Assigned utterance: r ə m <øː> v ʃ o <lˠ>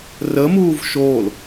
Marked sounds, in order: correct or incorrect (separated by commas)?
incorrect, incorrect